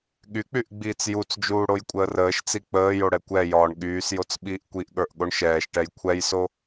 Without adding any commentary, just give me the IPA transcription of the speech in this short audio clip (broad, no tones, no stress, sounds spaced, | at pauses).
ɠ y k͡p y ʔ ɡ͡b iː t͡s j u t͡s d͡ʒ uː ɽ o j kʷʼ əː r əː ʃ t͡s i k͡p əː j o ɽ ɛ kʷ ɛ j ɒː ɳ ɠ yː s j o t͡s ɓ iː ʔ kʷ i ʔ ɠ ə˞ ʔ ɠ o ɳ ʃ ɛː ʃ ʈ ɛ j kʷʰ ɛ j s o